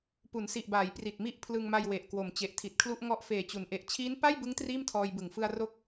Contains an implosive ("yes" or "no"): no